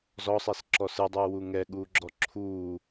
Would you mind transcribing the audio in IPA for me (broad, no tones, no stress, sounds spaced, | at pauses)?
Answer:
z ɔ sˤ e s ǁ ɔ s ɯ dˤ uː w u ŋ ɛ ɠ uː ɡ͡ǁ ɔ ǁʰ uː